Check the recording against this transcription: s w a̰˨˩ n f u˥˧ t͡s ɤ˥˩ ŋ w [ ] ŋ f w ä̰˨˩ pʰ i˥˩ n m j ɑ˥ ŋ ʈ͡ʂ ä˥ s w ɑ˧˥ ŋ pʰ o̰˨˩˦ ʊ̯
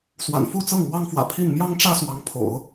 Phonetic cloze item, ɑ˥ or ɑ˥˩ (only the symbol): ɑ˥